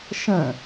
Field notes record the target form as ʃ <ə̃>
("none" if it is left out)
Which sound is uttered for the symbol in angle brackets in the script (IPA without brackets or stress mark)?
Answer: ə̃